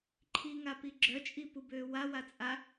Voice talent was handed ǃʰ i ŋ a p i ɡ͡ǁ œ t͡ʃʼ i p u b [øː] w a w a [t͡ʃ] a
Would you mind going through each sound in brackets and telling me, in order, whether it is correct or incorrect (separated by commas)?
correct, incorrect